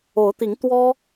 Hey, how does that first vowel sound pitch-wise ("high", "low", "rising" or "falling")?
rising